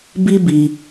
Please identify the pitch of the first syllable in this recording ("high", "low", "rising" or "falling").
high